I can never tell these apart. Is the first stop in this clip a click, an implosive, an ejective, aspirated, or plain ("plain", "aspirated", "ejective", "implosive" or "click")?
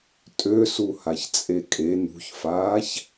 ejective